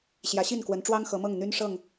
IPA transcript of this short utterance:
ɕ j ä˨˦ ɕ i˥˨ n k w ə˨˦ n ʈ͡ʂ w ɑ˦ ŋ x ɤ˨˦ m ɤ˥˨ ŋ n̪ y˦ n ʂ ɤ˥˨ ŋ

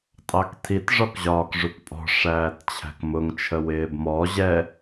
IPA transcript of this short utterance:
tʼ ɑ k tʰ i t ʐ ɔ k ʑ ɒː k ʐ u k pʼ ɔ̤ ʂ æː t t͡ɕʰ æ̤ k m ʊ ŋ t͡ʃʰ ə w ɪː b m ɔ ʑ ɛ

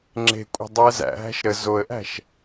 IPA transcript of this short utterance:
ŋ͡ǁ e̤ kʷʼ ə̤ dˤ ɨ ə̯ z æ̰ ɦ æ̤ ʃ ɾ ə z o ə̯ ʔ æ̤ ʃ

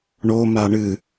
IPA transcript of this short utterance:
ɳ o m a ɳ ɨ

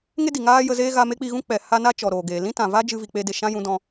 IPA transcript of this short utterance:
ŋ e˦ d i˨ ŋ aː˦ j ə˧ z eː˦ ɣ a˧ m e˦ k͡p i˧ ɣ ũ˦ k͡p ɛ˨ h a˦ n a˦ t͡ʃ ɔ˨ ɾ oː˨ ɡ eː˨ l ĩ˦ t ã˨ v a˦ d͡ʒ ɨ˧ v i˨ k͡p e˧ d e˨ ʃ ã˦ j ũ˧ d ɔ̃˧

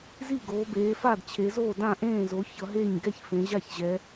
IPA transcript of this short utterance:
z i˥˩ ɡ oː˩˧ b eː˩˧ f a˥˩ d t͡ɕʰ e˩˧ z oː˥˩ d ã˥˩ ʔ ẽː˥˩ z o˩˧ ç ʌ˩˧ ɦ e˥˩ ɲ ɡ ɛ˥˩ ç f ẽ˩˧ ʑ a˥˩ ç ʑ ɛ˩˧

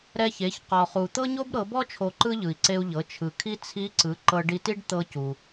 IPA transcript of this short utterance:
ɾ ɛ˧ ç e˩˧ ç q ɔ˩ χ u˩ t̪ ɤ˥ ɲ o˥ b ɾ ɤ˩˧ b ɔ˥ t͡ʃʰ o˧ ǃ ɯ˥ ʎ ɯ˩ i̯ ǀ e˧ u̯ ʎ ɤ˩˧ t͡ʃʰ ɯ˩ kʰ i˥ t͡sʰ i˧˥ ǀ ɯ˩˧ ǃ ɤ˧ ɖ i˧ t i˥ ɖ t̪ ɤ˧ c u˩

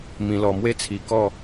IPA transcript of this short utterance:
m ĩ˧ l ɔ˧ m w e˦ t͡sʰ i˨˩ k ɔ˥˧

